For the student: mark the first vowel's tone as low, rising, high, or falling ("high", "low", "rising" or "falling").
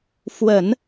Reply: low